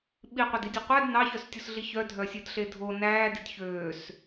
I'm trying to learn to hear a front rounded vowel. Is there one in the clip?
yes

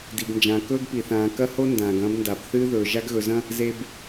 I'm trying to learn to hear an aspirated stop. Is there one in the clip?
no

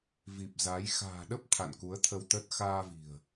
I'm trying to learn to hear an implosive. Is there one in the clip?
yes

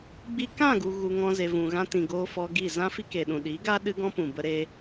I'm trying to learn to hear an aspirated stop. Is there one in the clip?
no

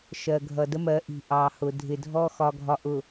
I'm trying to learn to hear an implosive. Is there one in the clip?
no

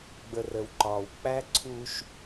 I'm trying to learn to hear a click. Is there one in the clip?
yes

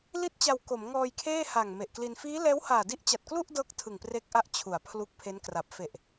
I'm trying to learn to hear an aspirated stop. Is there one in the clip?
yes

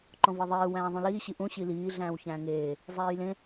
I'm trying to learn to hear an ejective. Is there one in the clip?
no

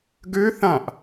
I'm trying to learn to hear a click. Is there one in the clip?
no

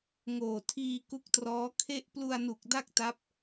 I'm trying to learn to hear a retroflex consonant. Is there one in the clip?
no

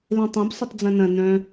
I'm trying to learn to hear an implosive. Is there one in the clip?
no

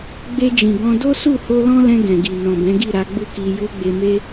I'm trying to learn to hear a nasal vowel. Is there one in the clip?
yes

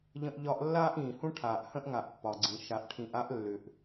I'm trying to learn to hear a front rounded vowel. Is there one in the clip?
yes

